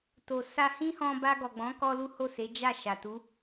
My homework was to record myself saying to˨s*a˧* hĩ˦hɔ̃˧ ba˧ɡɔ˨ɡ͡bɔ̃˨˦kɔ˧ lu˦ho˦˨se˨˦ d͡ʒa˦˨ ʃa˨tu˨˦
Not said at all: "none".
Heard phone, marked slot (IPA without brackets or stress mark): a˧